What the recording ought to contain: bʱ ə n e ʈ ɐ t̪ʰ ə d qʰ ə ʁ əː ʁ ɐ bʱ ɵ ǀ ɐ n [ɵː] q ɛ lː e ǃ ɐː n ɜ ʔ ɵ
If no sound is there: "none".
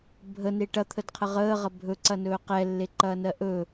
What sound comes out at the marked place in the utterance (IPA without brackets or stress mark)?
ɵː